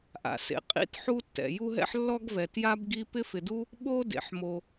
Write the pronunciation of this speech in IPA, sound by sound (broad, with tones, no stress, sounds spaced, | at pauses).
ʔ a̰˩ s ḛ˩ qʼ ḭ˥ t ħ u˥ tː ɛ̰˩ j u˥ ɦ ɛ̰˥ ħ lː ɔ˥ ɡ v ɛ˩ t j a˥ b ɡ i˥ p ɪ˥ f ɪ˩ d u˥ | ɓ o˥ d ḛ˩ ħ m o˩